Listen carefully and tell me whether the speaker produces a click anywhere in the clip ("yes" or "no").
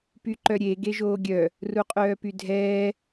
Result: yes